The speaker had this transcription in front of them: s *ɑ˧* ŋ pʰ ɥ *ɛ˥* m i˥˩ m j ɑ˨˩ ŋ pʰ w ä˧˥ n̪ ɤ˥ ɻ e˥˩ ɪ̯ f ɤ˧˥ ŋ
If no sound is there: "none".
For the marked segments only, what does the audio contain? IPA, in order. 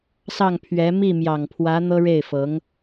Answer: ɑ˥˩, ɛ˧˥

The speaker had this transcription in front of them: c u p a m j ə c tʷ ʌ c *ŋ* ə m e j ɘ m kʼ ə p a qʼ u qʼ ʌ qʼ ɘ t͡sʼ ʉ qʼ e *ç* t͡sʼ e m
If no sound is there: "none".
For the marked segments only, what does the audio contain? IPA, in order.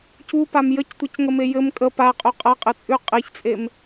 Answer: ŋ, ç

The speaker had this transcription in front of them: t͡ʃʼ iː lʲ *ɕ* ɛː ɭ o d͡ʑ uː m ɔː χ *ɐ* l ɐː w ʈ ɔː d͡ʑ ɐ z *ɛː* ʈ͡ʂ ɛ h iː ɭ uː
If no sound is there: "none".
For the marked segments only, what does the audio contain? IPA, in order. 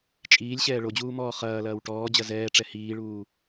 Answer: ɕ, ɐː, ɛː

